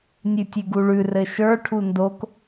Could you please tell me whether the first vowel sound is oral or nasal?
oral